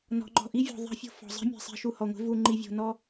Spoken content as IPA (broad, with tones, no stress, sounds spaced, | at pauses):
n ɔ̤˨ ŋ͡ǃ ɔ̤˨ ʔ i˦ vʲ ɔ̤˨ ðˤ ɛ̤˦ fʲ o̤˦ f ɔ̤˨ zˤ i̤˦ mʲ e̤˨ sˤ i̤˨ ʃ u˨ h ɔ˨ ŋʷ e̤˦ v u˨ ŋ͡ǃ i˨ vʲ o̤˨ n ɔ˦